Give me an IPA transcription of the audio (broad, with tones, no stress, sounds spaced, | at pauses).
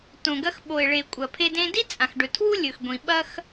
t õ˨ ɡ ɐ˧ x ɓ o˨ e̯ ɭ e˨ kʷʼ ɐ˨ pʰ e˧ d ẽ˧ d i˦ t͡sʼ ã˨ x ɖ ɵ˨ tʰ w u˦ lʲ ɵ˨ x ɡʷ ĩ˨ ɓ ɐ˦ x